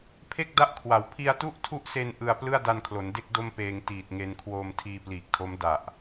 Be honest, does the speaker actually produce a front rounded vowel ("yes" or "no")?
no